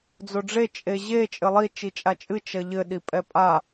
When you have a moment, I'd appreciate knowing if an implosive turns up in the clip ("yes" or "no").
yes